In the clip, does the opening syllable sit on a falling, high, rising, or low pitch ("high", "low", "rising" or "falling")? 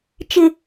low